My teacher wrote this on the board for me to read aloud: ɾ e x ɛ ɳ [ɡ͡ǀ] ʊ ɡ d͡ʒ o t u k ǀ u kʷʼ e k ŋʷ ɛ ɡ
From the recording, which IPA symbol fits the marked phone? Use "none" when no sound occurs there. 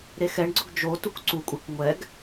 ɡ͡ǀ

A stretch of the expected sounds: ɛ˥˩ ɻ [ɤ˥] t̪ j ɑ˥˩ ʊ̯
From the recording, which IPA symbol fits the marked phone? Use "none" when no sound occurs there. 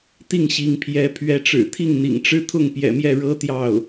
ɤ˥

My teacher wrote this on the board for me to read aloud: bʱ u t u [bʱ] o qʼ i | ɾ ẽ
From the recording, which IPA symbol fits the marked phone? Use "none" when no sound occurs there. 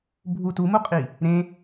m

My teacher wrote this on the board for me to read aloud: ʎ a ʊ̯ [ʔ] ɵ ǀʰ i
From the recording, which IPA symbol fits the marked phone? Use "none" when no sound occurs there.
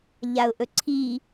ʔ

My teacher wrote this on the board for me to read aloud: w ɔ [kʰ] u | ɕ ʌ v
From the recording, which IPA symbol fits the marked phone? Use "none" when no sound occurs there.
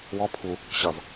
pʰ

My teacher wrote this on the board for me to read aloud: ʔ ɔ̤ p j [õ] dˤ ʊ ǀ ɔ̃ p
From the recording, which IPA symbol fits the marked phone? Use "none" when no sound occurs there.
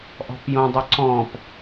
õ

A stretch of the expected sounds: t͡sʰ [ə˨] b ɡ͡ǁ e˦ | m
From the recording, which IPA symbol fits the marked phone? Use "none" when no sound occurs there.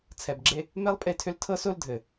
ɛ˨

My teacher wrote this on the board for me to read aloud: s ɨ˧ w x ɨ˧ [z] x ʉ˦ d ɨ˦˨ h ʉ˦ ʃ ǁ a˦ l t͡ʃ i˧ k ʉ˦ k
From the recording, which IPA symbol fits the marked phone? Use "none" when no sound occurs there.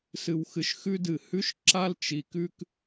ʃ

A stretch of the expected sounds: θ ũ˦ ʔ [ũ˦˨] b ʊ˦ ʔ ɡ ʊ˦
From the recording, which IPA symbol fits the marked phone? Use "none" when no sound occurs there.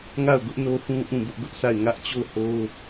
ũ˦˨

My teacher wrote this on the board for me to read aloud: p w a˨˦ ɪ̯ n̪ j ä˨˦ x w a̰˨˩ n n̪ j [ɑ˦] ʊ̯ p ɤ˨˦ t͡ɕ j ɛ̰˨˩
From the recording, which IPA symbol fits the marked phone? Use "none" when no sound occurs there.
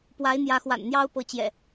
ɑ˦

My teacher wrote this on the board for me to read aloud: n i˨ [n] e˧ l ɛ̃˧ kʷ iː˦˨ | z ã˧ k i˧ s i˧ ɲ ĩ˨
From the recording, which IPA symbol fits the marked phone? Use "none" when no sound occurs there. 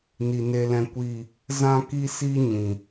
n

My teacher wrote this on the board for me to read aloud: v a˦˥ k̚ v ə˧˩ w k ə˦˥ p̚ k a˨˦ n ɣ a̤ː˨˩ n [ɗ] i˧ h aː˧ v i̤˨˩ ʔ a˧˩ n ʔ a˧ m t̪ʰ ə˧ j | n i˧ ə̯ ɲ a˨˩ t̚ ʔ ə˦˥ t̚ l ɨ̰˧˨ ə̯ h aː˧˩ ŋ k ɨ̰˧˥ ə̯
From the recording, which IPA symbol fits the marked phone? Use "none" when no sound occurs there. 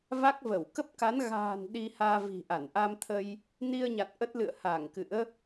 ɗ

